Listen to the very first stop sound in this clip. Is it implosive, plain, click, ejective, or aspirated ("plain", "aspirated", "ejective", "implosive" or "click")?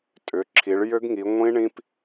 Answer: ejective